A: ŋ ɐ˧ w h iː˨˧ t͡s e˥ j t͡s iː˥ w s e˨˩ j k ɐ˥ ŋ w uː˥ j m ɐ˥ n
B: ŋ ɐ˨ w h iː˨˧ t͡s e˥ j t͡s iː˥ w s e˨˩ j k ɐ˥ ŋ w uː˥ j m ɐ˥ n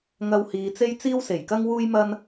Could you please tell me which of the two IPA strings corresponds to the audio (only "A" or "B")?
A